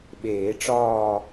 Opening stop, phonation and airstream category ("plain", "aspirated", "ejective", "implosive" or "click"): implosive